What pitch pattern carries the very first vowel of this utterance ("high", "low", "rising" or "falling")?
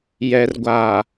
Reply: low